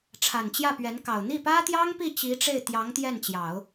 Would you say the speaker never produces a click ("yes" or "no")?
yes